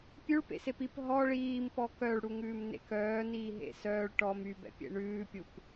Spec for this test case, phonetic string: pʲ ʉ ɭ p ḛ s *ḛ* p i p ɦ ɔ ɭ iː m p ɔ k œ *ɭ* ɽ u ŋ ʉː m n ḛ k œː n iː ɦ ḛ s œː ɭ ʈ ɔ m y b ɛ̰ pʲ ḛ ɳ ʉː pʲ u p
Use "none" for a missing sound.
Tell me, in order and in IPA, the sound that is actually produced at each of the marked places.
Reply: e, ɭ

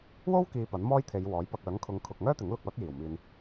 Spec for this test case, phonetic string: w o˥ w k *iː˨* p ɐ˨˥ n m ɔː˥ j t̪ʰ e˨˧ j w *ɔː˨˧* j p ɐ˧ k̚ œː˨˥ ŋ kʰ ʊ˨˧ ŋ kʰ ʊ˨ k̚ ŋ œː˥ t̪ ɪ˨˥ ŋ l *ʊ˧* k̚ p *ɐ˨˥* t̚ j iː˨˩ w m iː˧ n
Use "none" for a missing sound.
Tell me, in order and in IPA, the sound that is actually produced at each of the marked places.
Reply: iː˨, ɔː˨˥, ʊ˧, ɐ˨˥

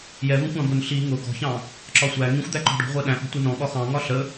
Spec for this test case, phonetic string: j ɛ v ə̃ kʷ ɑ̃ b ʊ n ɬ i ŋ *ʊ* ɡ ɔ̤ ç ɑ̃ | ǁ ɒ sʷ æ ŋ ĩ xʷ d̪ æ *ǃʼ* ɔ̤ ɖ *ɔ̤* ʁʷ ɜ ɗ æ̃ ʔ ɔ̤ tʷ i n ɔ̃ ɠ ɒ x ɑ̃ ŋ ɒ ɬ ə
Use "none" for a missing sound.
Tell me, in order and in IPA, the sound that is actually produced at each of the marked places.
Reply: ʊ, ǃ, ɔ̤

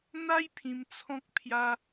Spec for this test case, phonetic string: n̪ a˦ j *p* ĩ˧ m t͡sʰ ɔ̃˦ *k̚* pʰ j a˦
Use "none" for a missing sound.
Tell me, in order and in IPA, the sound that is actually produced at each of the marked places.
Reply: pʰ, k̚

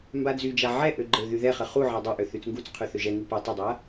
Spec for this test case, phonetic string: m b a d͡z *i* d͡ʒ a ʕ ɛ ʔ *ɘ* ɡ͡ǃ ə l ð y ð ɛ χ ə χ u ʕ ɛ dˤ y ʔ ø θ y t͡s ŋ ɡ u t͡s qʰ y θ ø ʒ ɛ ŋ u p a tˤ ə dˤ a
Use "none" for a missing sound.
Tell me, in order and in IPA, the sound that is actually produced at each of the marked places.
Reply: y, ø

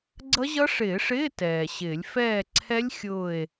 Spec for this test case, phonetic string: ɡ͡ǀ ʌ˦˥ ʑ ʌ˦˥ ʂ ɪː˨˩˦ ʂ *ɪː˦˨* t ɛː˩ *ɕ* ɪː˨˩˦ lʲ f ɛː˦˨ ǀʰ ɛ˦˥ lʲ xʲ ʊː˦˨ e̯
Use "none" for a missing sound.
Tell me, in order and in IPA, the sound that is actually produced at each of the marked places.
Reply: ɪː˧˥˧, ɕ

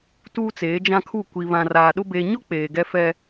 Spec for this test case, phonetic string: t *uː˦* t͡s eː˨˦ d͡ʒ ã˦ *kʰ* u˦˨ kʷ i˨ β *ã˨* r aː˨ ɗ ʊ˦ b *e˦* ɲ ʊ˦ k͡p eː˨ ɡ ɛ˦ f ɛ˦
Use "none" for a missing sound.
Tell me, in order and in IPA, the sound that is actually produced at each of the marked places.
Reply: uː˦, kʰ, ã˨, e˦

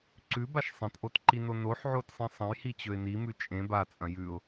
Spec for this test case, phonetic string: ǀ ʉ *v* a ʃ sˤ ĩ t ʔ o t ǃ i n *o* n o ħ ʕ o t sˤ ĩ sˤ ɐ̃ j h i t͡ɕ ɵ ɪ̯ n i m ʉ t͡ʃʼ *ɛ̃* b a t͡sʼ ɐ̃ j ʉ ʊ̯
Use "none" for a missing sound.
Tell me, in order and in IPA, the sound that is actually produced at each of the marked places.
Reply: b, o, ẽ

